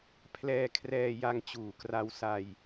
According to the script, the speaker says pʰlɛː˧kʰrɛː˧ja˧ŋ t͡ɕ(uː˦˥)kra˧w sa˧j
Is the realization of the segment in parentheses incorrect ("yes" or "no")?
yes